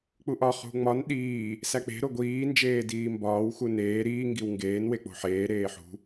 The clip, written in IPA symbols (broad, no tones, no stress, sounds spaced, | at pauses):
k͡p u ʔ ɒ χ ṳ ŋ͡m ɒ n ɗ iː | s æ k͡p e̤ ɾ o ɡʷ iː n d͡ʒ eː d iː m b ɒː w x u n eː ɾ iː ŋ ɡ i w ŋ ɡ eː n w e k͡p o̤ ħ eː ɾ eː ħ ṳ